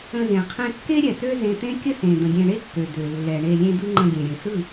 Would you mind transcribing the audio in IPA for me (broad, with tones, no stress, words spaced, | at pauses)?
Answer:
ə̃˧zẽ˨ qʰẽ˧kːe˦ɾʲɛ˨ t̪ø˦zẽ˧t̪ẽ˦kʲə˦ sẽ˨d̪ə̃˨ɡʲẽ˧ ɳe˦kːø˨ d̪ø˨lːɛ˨ ɳe˧ lʲẽ˦d̪ɯ˦ ŋ͡ǃə̃˧ɡʲẽ˨ ɾʲø˨sɯ˦˨